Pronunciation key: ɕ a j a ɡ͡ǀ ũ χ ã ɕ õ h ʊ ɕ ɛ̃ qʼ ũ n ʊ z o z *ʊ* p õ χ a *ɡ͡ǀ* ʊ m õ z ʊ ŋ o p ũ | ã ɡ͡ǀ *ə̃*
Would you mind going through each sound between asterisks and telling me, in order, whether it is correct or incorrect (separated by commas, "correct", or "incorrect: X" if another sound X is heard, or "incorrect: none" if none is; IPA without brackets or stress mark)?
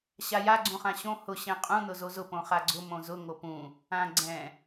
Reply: correct, correct, incorrect: ɛ̃